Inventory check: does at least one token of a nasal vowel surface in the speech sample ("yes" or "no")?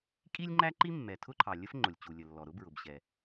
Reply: no